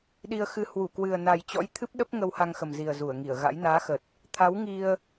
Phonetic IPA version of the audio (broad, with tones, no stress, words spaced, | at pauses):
ɗi˧ə̯xɨ˧ hwu˧˩kwɨ˨˩ə̯ na˨˩jt͡ɕɔ̰˧˥j t̪ʰɨ˦˥p̚ɗə˦˥p̚ ŋə˧wha˧ŋxə˨˩mzi˨˩ə̯ zu˧˩ə̯ŋi˧˩ə̯ɣa̰˧˥j naː˨˦xə˨˩t̚ | t̪ʰa˨˦wŋi˧ə̯